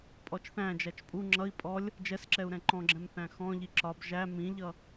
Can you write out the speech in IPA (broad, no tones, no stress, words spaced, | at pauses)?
pʼɔt͡ʃθæ̃d͡ʒæt͡ʃ pʼu ŋ͡ǁʌi̯ pʼɔlʲ | d͡ʒɛsǁɛu̯ ɾɛ̃ǃɔ̃ɡ͡ǁɛ̃m θæ̃xɔ̃ʎi ǁɒb ʒæ mĩʎʌ